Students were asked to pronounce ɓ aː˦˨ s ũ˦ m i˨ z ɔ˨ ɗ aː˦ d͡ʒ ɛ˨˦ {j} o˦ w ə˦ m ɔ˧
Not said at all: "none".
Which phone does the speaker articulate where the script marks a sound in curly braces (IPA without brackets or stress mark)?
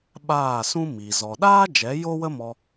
j